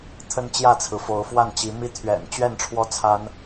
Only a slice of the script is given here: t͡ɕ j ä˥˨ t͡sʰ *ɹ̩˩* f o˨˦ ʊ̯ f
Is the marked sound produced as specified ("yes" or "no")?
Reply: yes